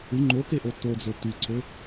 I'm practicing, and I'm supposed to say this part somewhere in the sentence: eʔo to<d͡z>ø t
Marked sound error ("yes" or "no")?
no